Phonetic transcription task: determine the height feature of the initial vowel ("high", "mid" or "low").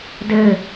mid